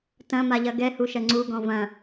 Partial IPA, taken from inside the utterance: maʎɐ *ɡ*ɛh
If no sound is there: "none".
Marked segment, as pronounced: ɡ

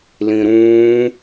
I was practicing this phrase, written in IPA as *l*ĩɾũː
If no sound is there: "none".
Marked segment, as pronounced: l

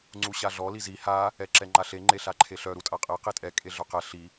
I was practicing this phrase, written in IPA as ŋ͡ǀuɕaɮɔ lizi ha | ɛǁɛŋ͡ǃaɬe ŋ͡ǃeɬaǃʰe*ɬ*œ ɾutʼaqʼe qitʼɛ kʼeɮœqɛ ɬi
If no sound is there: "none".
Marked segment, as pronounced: ɬ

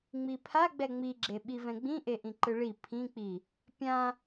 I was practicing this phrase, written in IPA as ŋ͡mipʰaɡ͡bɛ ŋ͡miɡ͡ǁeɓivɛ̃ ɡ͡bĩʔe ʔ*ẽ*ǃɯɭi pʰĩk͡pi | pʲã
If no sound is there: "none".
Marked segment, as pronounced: ĩ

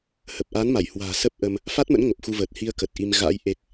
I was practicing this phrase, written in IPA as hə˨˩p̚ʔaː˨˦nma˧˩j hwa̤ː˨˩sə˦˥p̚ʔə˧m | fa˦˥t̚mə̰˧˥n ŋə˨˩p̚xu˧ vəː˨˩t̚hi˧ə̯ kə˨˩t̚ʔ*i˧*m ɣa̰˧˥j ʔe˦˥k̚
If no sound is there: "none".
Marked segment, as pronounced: i˧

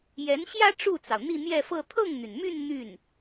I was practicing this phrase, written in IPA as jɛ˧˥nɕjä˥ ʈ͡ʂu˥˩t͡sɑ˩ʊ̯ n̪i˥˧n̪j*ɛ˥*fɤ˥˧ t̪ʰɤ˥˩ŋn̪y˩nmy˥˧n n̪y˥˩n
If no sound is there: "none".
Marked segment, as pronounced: ɛ˥˧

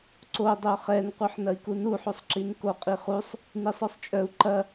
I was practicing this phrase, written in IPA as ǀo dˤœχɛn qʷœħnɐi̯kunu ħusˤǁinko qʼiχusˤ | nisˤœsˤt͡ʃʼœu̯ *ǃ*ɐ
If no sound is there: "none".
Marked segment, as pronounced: ǃ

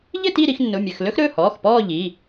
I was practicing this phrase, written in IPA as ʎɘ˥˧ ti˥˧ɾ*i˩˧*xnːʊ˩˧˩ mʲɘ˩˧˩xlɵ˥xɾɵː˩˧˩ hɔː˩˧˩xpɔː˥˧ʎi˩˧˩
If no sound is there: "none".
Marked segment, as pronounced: i˩˧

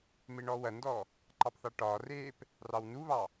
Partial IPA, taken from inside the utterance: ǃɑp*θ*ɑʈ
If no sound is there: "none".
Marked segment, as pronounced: θ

